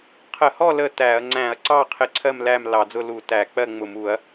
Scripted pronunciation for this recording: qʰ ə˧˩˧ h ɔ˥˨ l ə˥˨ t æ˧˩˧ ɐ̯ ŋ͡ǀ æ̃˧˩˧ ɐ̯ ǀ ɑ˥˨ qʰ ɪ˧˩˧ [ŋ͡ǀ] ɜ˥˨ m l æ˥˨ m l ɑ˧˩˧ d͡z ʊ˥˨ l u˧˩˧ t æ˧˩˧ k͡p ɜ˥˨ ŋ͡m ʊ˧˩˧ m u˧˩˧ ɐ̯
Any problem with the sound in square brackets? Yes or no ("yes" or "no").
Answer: yes